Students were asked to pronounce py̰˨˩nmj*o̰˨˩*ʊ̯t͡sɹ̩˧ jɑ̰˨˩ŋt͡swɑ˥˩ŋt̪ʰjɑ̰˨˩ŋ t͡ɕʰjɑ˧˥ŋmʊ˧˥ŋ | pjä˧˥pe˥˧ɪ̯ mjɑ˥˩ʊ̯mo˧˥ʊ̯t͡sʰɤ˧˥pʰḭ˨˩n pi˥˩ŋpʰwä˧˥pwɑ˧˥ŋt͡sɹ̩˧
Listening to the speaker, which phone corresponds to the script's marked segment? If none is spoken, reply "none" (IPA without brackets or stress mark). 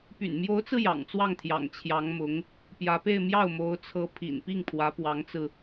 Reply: o˧˥